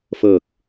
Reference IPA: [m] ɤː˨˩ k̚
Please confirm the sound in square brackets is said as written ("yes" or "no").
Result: no